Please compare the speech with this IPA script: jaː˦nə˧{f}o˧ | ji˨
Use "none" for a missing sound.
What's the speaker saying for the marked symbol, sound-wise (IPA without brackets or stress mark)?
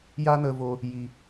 v